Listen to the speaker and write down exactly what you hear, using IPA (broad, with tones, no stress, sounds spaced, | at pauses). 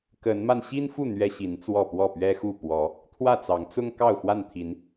k ə˨˦ n m a˧ n ɕ i˦ n f u˥˨ n̪ ɥ ɛ˦ ɕ i˨˦ n t͡s w ɔ˥˨ p w ɔ˥˨ p ɥ ɛ˦ x u˥˨ p w ɔ˨˦ | t̪ʰ w ä˥˨ t͡s ɑ˨˦ ŋ t͡s ʊ˦ ŋ k ɑ˥˨ ʊ̯ x w a˥˨ n t̪ʰ i˨˦ n